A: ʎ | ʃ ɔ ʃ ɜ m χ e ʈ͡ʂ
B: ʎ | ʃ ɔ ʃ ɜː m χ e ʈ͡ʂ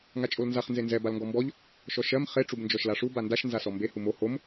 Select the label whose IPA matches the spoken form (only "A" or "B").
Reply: A